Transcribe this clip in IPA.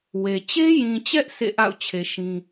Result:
w e˨ t͡ɕ e˦ j ĩ˨ t͡ɕ ɛ˦ ʔ sʰ ḛ˦˨ ʔ a̰˦˨ ʊ̯ t͡ɕʰ e˨ ʃ ĩ˦

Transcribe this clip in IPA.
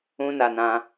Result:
ũ˧ n a˨ n ã˧

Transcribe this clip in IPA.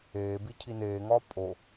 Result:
eː b i cʰ i n eː ŋ ɒː pʼ o

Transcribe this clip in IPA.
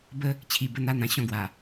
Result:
b ə˦ | t͡ɕʰ i˧ b ə˦ n̪ a˦ n̪ ã˧ ɕ ɔ̃˥˧ ɡ w a˨˩

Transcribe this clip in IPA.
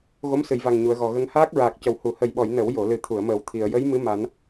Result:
ɣ o˧˥ m s ɨ˨˩˨ j v a˨˩ ŋ ɲ u˨˩˨ ə̯ ɣ ɔ˨˩ ɣ ə˧ ŋ h aː˦˥ k̚ ɹ aː˨˩ k̚ c ə˨˩ w h u˨˩˨ h ə˨˩ j ɓ ɔ˨˩˨ j n ə˨˩˦ w j o˨˩˨ l ɨ˨˩ t̪ʰ u˨˩˨ ə̯ m əː˨˩ w t̪ʰ i˨˩˨ ə̯ j ə˧˥ j m ɨ˧˥ m a˨˩˦ n

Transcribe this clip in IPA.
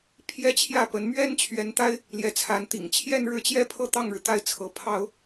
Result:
pʰ j ɛ˥ t͡ɕʰ j ä˥˩ p ə˧˥ n m ɥ ɛ˥ n t͡ɕʰ ɥ ɛ˧˥ n t̪ a˥ ɪ̯ | l j ɛ˧˥ t͡sʰ a˧˥ n t̪ ḭ˨˩ ŋ t͡ɕʰ j ɛ˥˧ n ɻ ɻ̩˥˩ t͡ɕ j ɛ˥ pʰ ɤ˥˧ t̪ ɑ˥˩ ŋ ɻ ɻ̩˩ t̪ a˥˩ ɪ̯ t͡sʰ ɤ˧˥ pʰ ɑ˥ ʊ̯

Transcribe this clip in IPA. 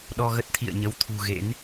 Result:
ɗ ɔ˧ ɣ ə˦˥ t̚ t̪ʰ ḭ˧˨ ə̯ ɲ ə˨˦ w t̪ʰ ṳ˨˩ ɣ ḛ˧˥ n

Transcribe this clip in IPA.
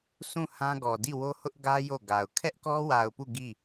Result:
s ũ˦˨ h ã˦ ɡ ɔ˨ d i˦˨ w o˦ h ʊ˦ ʔ ɡ ä˦ j o˦˨ ɡ a˨ ʊ̯ kʰ ɛ˦ ʔ k ɔ˦ w a˨ ʊ̯ p u˦˨ ɡ i˦˨

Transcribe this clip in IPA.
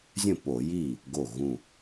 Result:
zʲ ə̃˥˩ p o˧˩˧ j i˥˩ | ɡ o˧˩ ɣ ũ˧˩

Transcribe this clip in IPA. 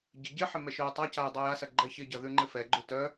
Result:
ɟ ɪ ɟ ɪ ħ ɪ m ɛ ʃ œ j tˤ a c a j dˤ e j a s ɐ ɡ͡ǃ ɛ ç ɪ ɟ ɐ ð ʉ ŋ͡ǃ ɪ f ɛ ɡ͡ǃ ʉ t œ

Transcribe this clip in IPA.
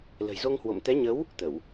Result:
l ə̤˨˩ j z o˧ ŋ h w o̰˧˨ m t̪ ɛ˨˦ ɲ ə˨˦ w | t̪ ə˧˩˨ w

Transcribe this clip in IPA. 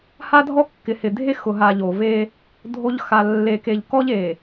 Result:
h a˦ dʱ ɔ˦ kː ɪ˨ h ɪ˨ dʱ e˦ x ʊ˨ ɦ a˨ ʎ o˨ v e˦ | dʱ o˦ ʎ x a˨ lː e˨ k e˨ ʎ k ɔ˦ ʎ e˨

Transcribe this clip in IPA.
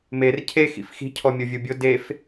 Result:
m e r cʰ e x ḭ f x i̤ cʰ ɔ mʲ o vʲ u bʲ ʊ d e f

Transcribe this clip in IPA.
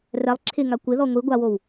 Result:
r ɛ lˠ ǁʰ ɪ ŋ a kʷ ɪ ð ɔ ŋʷ i ɡʷ a w o w

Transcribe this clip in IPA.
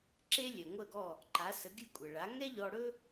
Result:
ǁ e˥ lʲ ɛ˩ ŋʷ ə˥˩ ɡ ɔ˥˩ | ǃ a˩˥ s ə˩˥ ɡʲ ɨ˥˩ kʷʼ ə˩ ɭ a˩˥ ŋ ɛ˥ ʎ ɔ˧ ɽ ɵ˥

